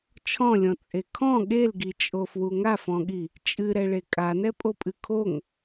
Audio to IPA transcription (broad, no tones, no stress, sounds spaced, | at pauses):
t͡ʃʰ ɔ̃ lʲ ɔ̃ t͡sʼ e kʰ ɔ̃ ɠ e l ɡ i t͡ʃʼ o f w u ŋ a f ɔ̃ ɠ i | t͡ʃʼ ɨ ɾ ɛ ɭ e kʼ a n ɛ pʼ o pʼ ɨ kʰ o ŋ